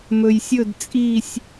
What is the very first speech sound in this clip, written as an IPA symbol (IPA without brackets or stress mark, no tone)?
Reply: m